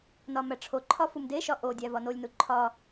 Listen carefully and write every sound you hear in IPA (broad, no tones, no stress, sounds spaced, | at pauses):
n ɒ m æ ʈ͡ʂʰ o ǃʰ ɒ f u m d e ʃ ɒ ʔ o dʲ æ v ɒ n o lʲ n u ǃʰ ɒ